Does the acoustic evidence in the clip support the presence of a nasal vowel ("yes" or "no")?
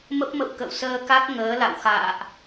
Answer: no